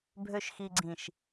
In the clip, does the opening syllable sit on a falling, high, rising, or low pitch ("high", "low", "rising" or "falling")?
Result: low